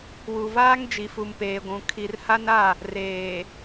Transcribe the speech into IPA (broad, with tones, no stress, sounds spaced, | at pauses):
w u˨ v aː˦ ŋ d͡ʒ i˨ f u˨ m p eː˨ ɡʷ ũ˨ kʰ i˨ r h a˦ n a˦˨ | r eː˨